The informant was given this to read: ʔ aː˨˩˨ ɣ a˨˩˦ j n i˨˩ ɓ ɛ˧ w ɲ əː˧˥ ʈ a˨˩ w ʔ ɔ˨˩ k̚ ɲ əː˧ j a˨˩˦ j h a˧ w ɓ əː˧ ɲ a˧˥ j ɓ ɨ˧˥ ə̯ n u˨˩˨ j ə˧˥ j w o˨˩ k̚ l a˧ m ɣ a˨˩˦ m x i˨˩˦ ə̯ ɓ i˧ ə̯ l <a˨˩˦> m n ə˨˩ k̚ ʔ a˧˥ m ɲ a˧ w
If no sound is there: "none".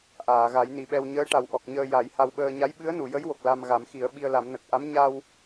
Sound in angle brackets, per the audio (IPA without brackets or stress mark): a˨˩˦